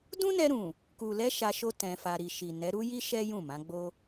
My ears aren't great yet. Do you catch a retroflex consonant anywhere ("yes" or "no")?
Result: no